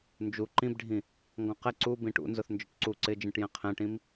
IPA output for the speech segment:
n d͡ʒ u ǃ ĩ b ɖʱ ĩ | ŋ ɡ ɔ̃ q ɛ ǀ u b ĩ ʈ ṵ n z ʊ θ n d͡ʒ ʊ ʈ ǀ u ǀ ɪ d͡ʒ ĩ ʈ j ɛ̃ qʰ ɛ̃ ʈ ĩ m

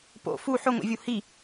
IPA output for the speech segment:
p o̰ f u ħ ʊ ŋʷ ḭ vʲ u h i

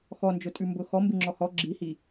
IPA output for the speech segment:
x ɔ n d͡ʒ ʊ tʼ ʉ m b ʊ x ɔ m b ɨ ŋ͡ǁ ɔ h ɔ ɡ͡ǁ i h i

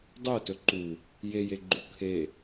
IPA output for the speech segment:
dˤ o t ɵ ǃ u | j e j e ɡ͡ǃ u kʰ e

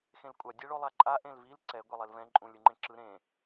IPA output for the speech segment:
x ẽ l kʷʼ a dʲ ɛ ɭ o lˠ a ǃʼ a ʔ ẽ l v i l ǀ ɛ ɡʷ ɛ lˠ e l v ɛ̃ ǃʼ ũ lʲ ɯ ŋ͡ǃ ẽ ǁ ɯ ɾ ẽ

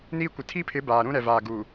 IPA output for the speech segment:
n iː˦ kʷ ɪ˨ tʰ i˦ pʰ ɪ˨˦ b aː˨ ɾ ũ˦ ɾ ɛ˨ v aː˨ ɡ u˨

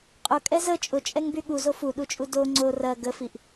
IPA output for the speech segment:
qʼ ʊ kʼ ɛ z ə t͡ʃʼ ʊ t͡ʃʼ ɛ ŋ b y ɠ u z o f u ɗ u t͡ʃʼ u d o ŋ͡ǀ o r ɐ ɡ ə f i ʔ

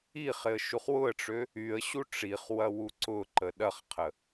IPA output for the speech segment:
i χ ɪ ə̯ ʃ u χ w ʊ ə̯ ʈ͡ʂ ø | y ə̯ ɕ u ʈ͡ʂ i χ w ɐ w u ǀ ʊ ǃ ə ɗ ɐ χ qʰ ə

